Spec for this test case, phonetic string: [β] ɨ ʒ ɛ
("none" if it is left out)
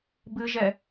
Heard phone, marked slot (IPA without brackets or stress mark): b